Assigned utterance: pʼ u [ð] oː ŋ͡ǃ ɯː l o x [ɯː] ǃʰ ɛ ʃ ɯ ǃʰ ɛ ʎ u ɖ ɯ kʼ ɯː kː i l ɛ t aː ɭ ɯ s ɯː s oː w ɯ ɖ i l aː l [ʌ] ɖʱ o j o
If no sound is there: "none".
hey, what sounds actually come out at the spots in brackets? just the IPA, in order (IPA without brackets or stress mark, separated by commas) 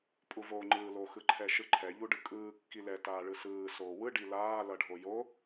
v, ɯ, ʌ